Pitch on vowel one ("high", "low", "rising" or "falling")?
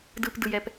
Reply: low